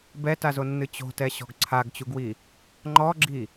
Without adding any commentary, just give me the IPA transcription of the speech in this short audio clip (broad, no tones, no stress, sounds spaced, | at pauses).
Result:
b ɛ t a z o nː ɨ t͡ɕ o̤ t ɛ ɕ ɔ̤ ɡ ǀʰ a ɡ t͡ɕ u ɡ w i | ŋ͡ǃ ɔ ɡ͡ǁ i